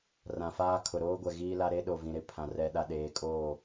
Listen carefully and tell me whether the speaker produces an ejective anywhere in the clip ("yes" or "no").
yes